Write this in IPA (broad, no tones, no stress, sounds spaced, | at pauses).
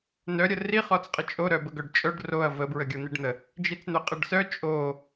n œ ɾʲ ə r i χ ɔ t͡s qʼ ə t͡ʃʼ o ɾ œ b ə ɡ œ ɖ t͡ʃʼ œ ɖ r o ɐ̯ v ə b ɹ ə ɡʲ o n̪ i ɖ n̪ ə | d͡ʒ i t͡s n̪ œ qʼ ə ɖ s œ t͡ʃʼ o